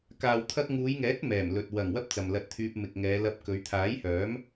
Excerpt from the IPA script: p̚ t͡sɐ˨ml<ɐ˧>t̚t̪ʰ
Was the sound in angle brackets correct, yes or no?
yes